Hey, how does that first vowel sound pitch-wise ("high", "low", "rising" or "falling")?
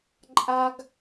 high